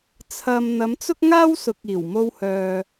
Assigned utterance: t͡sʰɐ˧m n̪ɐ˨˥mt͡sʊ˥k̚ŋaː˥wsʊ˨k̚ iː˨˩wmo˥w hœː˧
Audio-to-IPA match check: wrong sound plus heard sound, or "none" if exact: none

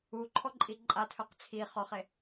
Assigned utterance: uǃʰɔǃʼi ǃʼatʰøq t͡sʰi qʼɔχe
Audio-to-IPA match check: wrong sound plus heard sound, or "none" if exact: qʼ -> χ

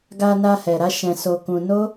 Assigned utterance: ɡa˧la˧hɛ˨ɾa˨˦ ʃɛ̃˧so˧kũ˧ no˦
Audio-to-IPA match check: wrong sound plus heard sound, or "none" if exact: l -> n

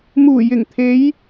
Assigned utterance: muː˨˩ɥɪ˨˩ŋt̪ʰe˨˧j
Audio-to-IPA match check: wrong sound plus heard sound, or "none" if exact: ɥ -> j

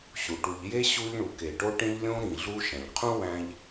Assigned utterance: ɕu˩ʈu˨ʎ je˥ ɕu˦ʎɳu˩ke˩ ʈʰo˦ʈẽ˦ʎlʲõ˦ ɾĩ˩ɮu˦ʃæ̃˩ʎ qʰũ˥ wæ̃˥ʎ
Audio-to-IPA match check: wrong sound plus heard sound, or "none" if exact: ʈʰ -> ʈ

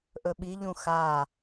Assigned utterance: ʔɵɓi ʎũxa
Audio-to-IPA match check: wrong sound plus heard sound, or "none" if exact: none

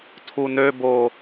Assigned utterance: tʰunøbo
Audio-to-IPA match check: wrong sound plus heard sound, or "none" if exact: none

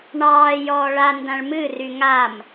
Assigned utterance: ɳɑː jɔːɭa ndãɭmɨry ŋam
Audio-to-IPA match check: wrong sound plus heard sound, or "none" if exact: none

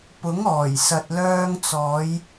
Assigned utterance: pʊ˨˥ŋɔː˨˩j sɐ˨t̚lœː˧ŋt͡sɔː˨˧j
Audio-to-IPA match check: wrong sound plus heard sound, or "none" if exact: none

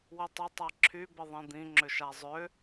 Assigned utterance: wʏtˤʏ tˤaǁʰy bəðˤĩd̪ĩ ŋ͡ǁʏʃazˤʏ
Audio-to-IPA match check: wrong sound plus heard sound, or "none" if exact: none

